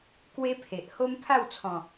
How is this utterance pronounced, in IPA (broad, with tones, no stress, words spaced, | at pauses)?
kwe˦pʰe˨ʔ ho˦mpʰa˥˧wt͡sʰɔ̃˨˩